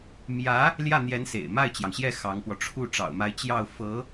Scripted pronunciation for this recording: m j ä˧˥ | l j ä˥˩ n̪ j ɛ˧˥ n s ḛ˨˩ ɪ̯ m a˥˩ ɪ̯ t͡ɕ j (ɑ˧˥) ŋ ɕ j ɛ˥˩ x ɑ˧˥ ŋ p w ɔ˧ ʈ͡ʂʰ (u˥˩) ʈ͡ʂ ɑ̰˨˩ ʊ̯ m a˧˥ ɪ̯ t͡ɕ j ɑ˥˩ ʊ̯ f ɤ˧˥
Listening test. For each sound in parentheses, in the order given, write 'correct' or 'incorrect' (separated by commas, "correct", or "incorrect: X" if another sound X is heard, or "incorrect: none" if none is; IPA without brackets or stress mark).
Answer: incorrect: ɑ˩, correct